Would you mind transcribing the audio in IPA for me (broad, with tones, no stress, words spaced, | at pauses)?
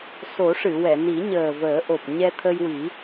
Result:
so˨˩˦ʂɨ˨˩˨wɛ˨˩˨ ni˨˩˦ɲəː˨˩vəː˨˩˦ʔo˨˩p̚ ɲɛ˧t̪ʰə˧jwi˨˩˦